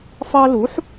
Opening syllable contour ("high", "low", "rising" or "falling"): high